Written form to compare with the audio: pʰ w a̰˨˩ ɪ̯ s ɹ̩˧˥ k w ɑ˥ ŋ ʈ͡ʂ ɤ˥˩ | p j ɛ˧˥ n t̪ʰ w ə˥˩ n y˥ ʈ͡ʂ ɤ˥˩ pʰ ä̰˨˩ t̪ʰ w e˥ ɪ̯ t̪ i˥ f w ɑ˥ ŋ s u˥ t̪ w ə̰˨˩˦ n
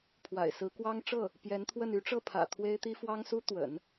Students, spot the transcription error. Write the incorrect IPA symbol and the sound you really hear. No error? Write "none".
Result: none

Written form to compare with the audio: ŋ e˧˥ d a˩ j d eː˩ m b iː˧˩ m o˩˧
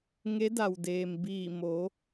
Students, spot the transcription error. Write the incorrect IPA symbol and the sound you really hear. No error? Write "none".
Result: j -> w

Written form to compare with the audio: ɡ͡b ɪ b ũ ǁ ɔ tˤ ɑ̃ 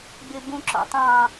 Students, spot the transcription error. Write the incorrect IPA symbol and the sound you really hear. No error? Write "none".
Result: ɔ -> ɔ̰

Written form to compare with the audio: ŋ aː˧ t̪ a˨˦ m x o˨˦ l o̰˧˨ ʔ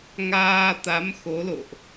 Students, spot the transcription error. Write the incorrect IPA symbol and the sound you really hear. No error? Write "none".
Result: none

